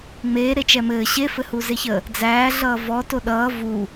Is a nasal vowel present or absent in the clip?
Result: absent